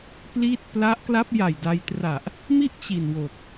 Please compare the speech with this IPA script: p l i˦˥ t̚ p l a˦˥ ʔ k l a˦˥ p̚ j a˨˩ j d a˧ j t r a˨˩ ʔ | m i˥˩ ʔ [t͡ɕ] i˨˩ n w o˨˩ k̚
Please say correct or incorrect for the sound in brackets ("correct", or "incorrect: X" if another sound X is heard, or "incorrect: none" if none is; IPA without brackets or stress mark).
correct